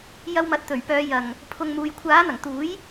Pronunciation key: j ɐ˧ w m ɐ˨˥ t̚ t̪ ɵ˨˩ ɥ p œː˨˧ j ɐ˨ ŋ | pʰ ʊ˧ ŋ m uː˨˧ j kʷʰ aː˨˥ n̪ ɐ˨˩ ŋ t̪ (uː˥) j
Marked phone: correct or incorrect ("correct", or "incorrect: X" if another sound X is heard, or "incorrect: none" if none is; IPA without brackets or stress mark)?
incorrect: uː˨˥